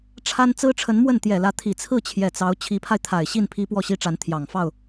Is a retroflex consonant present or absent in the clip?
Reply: present